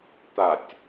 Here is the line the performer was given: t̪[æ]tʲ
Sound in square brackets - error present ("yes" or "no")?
yes